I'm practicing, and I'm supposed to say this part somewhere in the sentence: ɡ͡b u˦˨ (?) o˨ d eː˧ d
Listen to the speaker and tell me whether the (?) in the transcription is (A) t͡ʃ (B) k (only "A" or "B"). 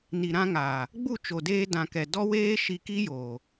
A